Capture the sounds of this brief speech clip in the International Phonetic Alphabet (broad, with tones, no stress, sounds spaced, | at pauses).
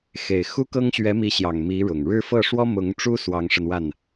x e˨˩ ɪ̯ x u˥ k ɤ˥ ŋ ɕ ɥ ɛ˧˥ m i˧˥ ɕ j ɑ˨˩ ŋ m i˧˥ ɻ ʊ˨˩ ŋ ɻ ɻ̩˥˧ f ɤ˥˩ ʂ w ɔ˥ m ʊ˧˥ ŋ ʈ͡ʂ u˥ s w ɑ˧˥ ŋ ʂ ə˧ n w a˥˩ n